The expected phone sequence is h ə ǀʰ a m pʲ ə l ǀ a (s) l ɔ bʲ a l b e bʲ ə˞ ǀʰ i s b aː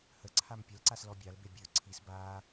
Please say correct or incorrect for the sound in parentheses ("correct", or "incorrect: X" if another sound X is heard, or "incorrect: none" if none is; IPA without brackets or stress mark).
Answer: correct